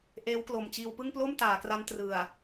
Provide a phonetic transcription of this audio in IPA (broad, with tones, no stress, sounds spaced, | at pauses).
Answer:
ʔ eː˦˥ w k l o˨˩ m t͡ɕ iː˧ w p ɯ˥˩ ŋ p l o˥˩ m t aː˩˦ k r a˦˥ n t r ɯ˨˩ a̯